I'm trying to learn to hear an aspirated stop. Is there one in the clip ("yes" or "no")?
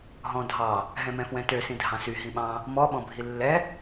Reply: no